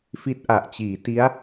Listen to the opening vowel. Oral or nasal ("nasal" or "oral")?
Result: oral